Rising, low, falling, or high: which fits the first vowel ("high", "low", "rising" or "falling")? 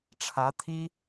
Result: rising